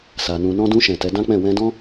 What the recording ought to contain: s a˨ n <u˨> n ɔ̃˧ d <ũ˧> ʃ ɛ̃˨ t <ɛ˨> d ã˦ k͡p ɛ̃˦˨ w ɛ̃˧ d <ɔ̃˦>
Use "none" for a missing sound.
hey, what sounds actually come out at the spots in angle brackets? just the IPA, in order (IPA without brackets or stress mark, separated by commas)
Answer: ũ˨, ũ˧, ɛ˨˦, ɔ̃˦